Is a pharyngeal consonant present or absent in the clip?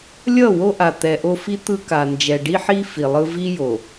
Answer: present